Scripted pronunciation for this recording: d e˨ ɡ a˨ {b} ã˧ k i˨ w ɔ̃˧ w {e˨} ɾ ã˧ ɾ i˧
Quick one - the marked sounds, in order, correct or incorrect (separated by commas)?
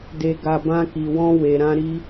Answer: correct, correct